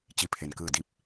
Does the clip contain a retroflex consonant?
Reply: no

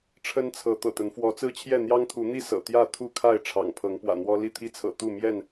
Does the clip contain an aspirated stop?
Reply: yes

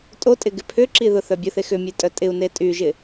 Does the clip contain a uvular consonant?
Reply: no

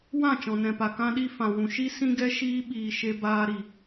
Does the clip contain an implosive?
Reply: yes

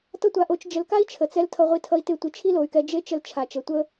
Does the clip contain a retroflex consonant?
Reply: no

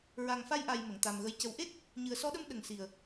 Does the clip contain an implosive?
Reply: yes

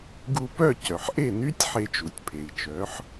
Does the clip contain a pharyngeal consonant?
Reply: yes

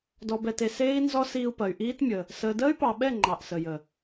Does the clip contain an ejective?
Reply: no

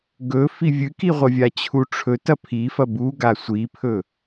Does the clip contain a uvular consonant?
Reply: yes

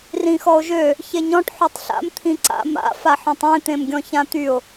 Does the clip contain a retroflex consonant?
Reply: yes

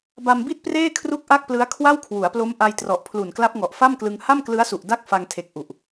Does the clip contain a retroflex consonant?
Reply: no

